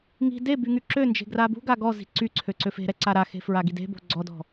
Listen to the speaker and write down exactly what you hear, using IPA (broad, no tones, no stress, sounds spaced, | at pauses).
ŋ i̤ d e b y ŋ y ǁ ø n d͡ʒ e̤ ɡ r a b ṳ ɡ a ɡ ɔ z i̤ ǀ y ǀʰ ø ǀ ø f e̤ ɾ ɛ ǀ a ɾ a x e̤ f ɹ a ɡ i d e̤ b o̤ ɡ͡ǀ ɔ d ɔ̤